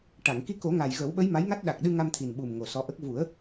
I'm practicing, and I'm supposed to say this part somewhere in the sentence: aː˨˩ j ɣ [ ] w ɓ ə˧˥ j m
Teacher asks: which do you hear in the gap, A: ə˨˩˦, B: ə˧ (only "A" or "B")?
A